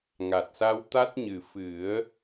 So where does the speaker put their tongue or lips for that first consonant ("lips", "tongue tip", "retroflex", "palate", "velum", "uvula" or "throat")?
velum